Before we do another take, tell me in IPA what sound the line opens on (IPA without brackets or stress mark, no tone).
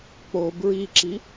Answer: k͡p